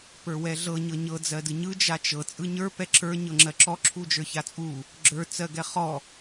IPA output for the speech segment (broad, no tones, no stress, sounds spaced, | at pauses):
p ə˞ w ɛ ɮ ɤ ɲ ɤ ɲ ɤ d͡z ɜ d ɯ ɲ ɯ d͡ʒ a t͡ʃ ɤ t͡sʼ ɯ ɲ ə˞ p ɛ ǁ ə˞ ɲ ɤ ŋ͡ǁ ɜ ǁ ɔ ǁʰ u d͡ʒ ə˞ ç a t͡sʼ u | ɡ͡ǁ ə˞ t͡s ɜ ɡ ɛ χ ɔ